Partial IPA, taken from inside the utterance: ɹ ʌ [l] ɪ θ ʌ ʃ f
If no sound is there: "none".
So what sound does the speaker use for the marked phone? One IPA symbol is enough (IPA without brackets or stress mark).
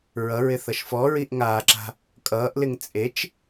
ɹ